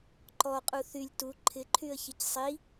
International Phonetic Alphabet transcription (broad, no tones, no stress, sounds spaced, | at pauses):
ǃ ɔ qʼ u θ y lʲ t u ǃʰ ɪ ǃʰ y ə̯ ç i c sˤ i